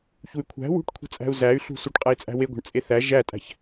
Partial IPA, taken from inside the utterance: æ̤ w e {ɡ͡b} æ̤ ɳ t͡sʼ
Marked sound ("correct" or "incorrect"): incorrect